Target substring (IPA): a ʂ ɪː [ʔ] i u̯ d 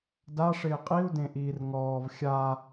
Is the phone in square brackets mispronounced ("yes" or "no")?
yes